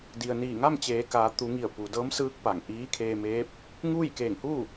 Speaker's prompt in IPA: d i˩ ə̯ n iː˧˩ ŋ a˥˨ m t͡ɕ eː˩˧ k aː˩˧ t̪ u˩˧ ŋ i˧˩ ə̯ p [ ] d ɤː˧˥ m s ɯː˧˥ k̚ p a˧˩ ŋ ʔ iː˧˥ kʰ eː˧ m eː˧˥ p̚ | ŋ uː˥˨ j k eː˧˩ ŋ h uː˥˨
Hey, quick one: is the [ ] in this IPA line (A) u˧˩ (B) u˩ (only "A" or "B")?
B